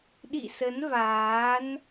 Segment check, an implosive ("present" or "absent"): present